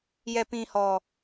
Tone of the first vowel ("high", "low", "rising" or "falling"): low